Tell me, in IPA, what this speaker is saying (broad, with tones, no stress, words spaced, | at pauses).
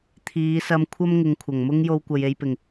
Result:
t̪ʰiː˨˧sɐ˧m kʷʰɐ˥mŋɪ˨˧ŋkʷʰɐ˨˩ŋmʊ˥ŋ jo˧wkʷɐ˨je˧jpɪ˨˩ŋ